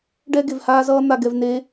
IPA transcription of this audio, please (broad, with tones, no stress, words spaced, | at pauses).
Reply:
ɖɛ˦ ɡe˨vhaː˦zʌː˦ n̪a˨ɡɛ˨vne˨˦